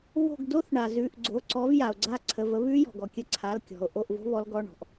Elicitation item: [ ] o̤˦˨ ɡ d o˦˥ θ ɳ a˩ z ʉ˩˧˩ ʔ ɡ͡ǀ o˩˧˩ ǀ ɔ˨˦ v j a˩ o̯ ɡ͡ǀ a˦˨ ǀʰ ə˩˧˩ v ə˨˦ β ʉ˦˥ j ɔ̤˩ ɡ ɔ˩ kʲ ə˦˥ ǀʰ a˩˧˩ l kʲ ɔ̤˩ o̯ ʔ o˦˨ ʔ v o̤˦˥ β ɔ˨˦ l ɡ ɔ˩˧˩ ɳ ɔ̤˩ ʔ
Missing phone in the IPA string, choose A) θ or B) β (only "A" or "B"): B